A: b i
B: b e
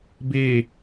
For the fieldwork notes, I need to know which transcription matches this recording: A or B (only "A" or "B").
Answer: B